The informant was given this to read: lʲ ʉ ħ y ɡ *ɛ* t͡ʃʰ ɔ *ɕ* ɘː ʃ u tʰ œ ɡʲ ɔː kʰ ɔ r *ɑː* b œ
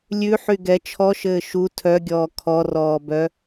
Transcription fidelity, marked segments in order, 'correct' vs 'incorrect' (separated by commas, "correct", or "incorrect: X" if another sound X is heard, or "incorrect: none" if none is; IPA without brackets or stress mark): correct, incorrect: ʃ, incorrect: ɔː